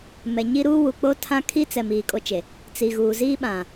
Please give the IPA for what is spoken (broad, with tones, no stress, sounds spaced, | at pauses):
m ɛ˨ ɲ i˦ ɾ uː˦ w u˨ k͡p o˦ tʰ ã˦ kʰ i˦ t͡s ɛ˨ m iː˨ kʼ o˦ t͡ʃ e˨ | t͡s i˨ ɣ uː˨ z iː˦ ɓ ã˨